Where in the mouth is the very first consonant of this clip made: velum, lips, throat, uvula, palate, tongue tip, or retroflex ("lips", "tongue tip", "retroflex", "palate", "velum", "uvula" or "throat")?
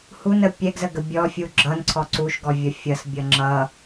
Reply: throat